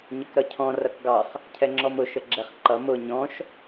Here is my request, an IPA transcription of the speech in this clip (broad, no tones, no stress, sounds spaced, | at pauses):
ɲ ə k ɾ ʌ cʰ ɔ̃ r ʌ k ɡ ɑ χ | cʰ ɛ ŋ͡ǁ ɔ m ʊ ʃ ə ɡ͡ǁ ɛ χ ǃ ʌ m ʊ ɲ ɔ̃ ʃ